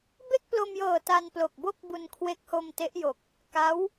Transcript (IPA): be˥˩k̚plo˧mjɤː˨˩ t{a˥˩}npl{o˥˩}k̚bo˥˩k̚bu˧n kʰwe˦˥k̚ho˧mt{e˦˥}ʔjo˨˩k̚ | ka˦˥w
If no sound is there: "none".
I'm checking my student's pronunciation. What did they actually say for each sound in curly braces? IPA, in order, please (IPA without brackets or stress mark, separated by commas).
a˧, o˨˩, e˦˥